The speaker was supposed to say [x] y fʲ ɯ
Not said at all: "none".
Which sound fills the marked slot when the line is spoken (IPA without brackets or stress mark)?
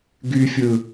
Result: ɡ